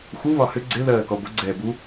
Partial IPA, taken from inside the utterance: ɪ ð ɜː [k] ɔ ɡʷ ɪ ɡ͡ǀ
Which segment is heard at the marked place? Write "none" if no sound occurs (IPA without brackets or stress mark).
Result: k